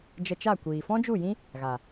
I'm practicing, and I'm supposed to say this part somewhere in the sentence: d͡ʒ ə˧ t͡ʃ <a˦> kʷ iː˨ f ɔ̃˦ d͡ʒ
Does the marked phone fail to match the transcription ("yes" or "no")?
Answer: yes